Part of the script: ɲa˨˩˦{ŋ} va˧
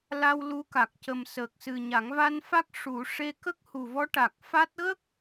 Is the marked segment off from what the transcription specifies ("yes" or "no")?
no